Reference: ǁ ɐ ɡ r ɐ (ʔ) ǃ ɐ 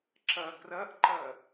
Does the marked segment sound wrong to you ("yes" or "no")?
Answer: no